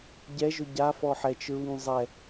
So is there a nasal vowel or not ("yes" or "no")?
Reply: no